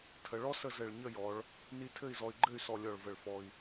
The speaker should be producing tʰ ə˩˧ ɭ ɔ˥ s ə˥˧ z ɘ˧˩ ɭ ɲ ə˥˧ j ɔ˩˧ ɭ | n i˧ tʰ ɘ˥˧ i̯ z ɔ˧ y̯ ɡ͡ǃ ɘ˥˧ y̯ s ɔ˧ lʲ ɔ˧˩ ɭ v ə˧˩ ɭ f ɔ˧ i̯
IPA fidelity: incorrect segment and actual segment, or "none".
none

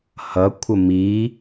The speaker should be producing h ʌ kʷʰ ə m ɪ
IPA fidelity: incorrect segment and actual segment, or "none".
ɪ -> i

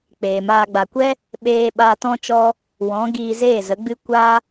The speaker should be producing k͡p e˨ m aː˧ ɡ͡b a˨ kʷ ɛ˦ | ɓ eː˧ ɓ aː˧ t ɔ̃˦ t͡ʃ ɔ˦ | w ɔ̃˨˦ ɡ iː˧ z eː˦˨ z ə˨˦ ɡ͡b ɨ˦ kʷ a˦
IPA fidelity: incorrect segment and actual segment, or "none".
e˨ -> eː˨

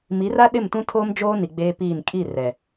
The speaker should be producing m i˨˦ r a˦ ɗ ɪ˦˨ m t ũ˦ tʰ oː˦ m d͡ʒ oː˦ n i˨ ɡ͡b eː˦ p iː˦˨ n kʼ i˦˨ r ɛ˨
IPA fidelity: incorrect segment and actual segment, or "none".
none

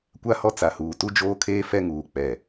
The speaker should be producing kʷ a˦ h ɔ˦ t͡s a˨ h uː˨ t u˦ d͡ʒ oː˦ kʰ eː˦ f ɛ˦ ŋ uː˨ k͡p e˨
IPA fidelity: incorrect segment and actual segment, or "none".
e˨ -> ɛ˨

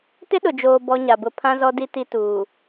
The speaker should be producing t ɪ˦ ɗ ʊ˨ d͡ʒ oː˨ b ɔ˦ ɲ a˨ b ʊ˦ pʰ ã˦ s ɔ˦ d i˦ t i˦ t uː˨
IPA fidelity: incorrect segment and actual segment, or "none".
s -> z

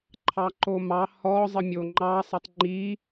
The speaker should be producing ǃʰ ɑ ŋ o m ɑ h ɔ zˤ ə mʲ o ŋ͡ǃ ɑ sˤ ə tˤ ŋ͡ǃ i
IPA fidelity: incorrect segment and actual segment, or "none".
ŋ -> ǃ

